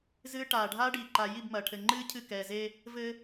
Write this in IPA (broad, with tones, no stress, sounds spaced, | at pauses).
z ɨː˦ ʈ aː˨ ɖʱ aː˦ ɖ iː˨ ǃ a˨ j i˦˨ b m ɐː˨ ʈʰ ɘ˨ ŋ͡ǃ ɨː˦ cʰ ɨ˦˨ k ɛː˨ z e˦ | v ɘ˦